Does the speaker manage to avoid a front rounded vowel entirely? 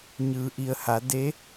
yes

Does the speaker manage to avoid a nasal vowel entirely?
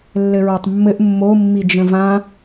no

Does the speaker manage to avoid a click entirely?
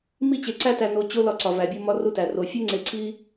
no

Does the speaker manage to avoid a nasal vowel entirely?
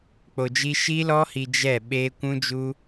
no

